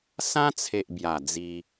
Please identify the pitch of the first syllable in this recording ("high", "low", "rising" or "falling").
high